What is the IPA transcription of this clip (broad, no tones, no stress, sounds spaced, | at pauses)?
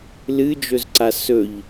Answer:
l ɨ d͡ʒ ɵ z ǀ a s ɵ ʎ